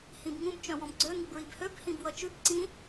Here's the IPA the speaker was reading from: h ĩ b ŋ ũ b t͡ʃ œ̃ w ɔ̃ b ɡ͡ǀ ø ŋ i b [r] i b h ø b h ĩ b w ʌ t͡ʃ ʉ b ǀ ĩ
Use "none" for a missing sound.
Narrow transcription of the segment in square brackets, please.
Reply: ɹ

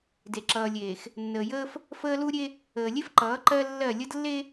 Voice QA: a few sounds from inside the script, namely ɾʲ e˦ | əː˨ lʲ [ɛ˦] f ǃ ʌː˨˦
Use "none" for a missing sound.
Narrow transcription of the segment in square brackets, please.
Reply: e˦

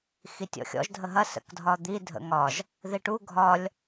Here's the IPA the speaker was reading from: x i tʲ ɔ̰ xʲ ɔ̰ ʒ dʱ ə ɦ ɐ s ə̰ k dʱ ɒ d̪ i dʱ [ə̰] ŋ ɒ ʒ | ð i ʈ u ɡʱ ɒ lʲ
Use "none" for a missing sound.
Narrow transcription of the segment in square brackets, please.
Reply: ə̰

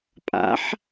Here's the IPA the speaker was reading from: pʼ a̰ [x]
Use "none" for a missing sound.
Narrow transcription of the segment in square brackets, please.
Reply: ħ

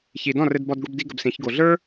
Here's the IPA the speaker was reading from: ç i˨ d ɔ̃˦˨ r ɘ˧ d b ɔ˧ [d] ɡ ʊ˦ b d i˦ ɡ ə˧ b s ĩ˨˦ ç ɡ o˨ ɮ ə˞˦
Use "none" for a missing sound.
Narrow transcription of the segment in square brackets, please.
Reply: d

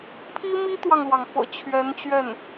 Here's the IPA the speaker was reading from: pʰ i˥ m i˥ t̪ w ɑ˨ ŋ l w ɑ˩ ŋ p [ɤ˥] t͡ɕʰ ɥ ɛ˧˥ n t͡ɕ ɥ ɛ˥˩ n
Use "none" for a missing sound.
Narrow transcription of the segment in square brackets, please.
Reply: ɤ̰˨˩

